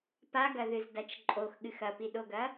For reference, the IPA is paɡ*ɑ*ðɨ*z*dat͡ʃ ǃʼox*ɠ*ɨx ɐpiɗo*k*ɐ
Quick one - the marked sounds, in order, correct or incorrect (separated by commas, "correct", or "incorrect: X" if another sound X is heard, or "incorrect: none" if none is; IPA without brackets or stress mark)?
incorrect: ɐ, correct, correct, incorrect: ɡ